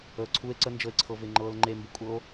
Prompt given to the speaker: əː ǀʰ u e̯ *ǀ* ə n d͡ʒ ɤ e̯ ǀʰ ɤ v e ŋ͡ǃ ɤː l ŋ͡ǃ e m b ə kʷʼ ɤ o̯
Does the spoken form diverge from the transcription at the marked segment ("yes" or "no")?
no